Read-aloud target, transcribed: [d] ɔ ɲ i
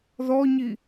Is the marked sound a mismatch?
yes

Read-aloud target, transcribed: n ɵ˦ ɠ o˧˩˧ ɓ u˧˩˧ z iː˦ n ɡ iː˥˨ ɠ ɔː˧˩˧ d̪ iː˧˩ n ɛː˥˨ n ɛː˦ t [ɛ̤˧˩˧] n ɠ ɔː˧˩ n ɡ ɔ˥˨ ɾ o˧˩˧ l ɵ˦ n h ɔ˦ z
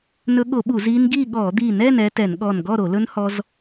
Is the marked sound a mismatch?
yes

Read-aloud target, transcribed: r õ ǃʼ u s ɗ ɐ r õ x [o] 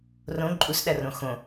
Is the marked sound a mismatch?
yes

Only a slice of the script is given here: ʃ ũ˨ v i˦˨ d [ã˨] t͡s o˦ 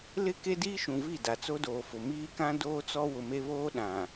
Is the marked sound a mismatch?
yes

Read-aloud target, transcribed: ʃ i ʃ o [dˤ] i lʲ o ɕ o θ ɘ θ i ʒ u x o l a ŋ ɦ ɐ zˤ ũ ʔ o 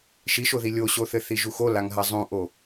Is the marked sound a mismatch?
yes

